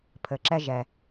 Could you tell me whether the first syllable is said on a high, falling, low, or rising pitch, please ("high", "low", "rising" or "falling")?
low